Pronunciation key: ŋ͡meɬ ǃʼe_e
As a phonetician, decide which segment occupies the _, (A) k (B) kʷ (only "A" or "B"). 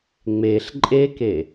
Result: A